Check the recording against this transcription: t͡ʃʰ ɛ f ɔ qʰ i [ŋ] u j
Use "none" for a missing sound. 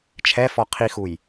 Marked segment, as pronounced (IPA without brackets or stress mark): x